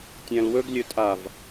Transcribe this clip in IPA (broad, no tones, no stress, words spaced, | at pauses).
tʲæ̃lwɵɡ lʲɵtʼav